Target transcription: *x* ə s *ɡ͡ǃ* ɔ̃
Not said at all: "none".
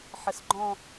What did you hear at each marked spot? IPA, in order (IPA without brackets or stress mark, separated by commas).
ħ, ɡ͡ǃ